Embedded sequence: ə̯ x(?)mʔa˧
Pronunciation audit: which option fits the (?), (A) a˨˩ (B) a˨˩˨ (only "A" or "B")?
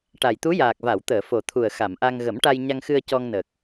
B